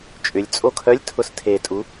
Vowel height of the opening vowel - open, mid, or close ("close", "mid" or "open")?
close